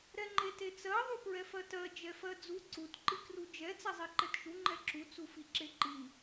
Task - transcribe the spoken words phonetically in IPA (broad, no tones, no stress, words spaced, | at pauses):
ɾɛŋ͡ǃetet͡sɜ ðˤupɹɛfɜtɜ d͡ʒɛfɜd͡zu ǀut ǃikrud͡ʒɛ t͡sɛzˤeǃɛtʃu ŋ͡ǃɛǁu t͡sufiǁeǃi